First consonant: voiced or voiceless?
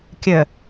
voiceless